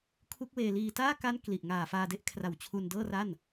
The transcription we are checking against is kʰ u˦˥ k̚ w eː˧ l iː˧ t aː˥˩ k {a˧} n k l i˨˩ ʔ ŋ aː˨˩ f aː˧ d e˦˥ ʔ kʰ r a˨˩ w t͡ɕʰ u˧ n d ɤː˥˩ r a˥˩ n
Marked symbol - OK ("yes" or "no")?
no